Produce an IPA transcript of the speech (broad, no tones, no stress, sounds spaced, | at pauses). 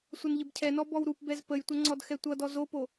sʷ ʌ n ʎ ə b cʰ ɛ n ɔ b ɔ w ɾ u p b ɛ z p ə j tʷ ʌ ŋ͡ǀ ɔ d x ɛ tʷ ʌ d ɔ z o p o